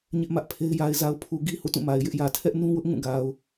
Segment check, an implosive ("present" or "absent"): absent